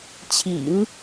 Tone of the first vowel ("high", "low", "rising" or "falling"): low